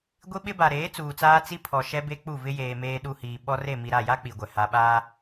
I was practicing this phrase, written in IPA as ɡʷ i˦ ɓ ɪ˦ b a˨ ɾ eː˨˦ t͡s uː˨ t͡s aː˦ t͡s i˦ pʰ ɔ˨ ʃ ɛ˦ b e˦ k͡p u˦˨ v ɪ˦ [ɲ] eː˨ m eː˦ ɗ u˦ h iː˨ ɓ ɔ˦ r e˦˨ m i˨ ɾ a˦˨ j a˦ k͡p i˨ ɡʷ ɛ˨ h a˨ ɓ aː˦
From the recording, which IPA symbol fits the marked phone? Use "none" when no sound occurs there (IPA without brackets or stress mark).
j